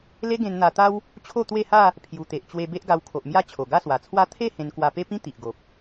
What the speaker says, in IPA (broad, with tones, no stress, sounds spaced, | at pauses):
l e˦ ɡ ẽ˧ n n̪ a˧ t̪ a˦ w | t͡ɕʰ o˥˧ t̪ w e˥˧ h a˥˧ | pʰ j u˨˩ t̪ e˨ ʔ t͡ɕ w e˧ b e˦ ʔ ɡ a˧ w kʰ o˨ ʔ m j a˥˧ t͡ɕʰ o˨˩ ɡ a˥˧ s w a˨˩ t͡sʰ w a˦ t̪ʰ e˥˧ h ẽ˧ n k w a˧ p e˦ p ĩ˦ t̪ i˨ ʔ ɡ o˨ p̚